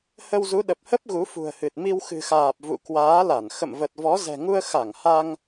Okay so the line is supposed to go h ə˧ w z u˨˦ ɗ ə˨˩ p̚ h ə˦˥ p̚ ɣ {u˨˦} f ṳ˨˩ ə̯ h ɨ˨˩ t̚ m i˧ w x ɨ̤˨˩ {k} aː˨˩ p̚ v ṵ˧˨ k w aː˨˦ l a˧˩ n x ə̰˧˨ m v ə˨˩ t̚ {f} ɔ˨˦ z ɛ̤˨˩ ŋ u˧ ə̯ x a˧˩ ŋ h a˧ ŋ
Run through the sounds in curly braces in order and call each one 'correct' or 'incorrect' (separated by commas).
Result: correct, incorrect, incorrect